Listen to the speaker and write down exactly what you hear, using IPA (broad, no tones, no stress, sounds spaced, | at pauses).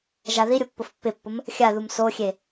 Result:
ʒ a ð i ɾʲ ʊ pː ʊ f pː ɪ pː ʊ m | xʲ a ð u m s o xʲ e